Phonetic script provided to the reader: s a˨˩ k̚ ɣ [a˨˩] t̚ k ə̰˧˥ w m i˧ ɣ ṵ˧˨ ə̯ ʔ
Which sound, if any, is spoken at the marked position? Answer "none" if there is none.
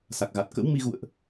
a˨˩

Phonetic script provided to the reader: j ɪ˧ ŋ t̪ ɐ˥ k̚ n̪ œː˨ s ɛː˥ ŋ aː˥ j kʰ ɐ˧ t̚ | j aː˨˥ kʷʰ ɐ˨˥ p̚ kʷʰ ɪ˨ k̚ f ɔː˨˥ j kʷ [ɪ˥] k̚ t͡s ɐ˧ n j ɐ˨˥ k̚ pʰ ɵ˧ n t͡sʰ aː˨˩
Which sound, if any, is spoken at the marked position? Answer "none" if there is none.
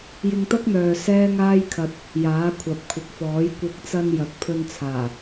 ɪ˨˥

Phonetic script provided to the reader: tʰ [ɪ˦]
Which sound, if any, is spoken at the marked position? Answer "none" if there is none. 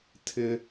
ɪ˦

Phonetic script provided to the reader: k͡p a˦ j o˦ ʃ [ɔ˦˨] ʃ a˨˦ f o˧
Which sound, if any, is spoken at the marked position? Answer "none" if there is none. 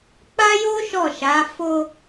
ɔ˦˨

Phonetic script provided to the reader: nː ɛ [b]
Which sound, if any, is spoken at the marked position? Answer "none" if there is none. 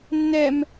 m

